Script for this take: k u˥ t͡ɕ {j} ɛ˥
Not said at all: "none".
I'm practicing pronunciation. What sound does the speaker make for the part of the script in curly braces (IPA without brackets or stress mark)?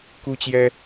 j